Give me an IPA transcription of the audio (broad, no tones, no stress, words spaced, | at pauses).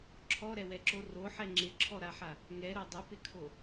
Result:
ǁʰɔɾɛwɛǁo roħɛ ŋ͡ǁɪǁʰɔɾaħa | ŋɛɾo dˤɪpɪkʰo